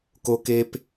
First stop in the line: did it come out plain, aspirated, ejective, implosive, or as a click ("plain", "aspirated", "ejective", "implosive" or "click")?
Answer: plain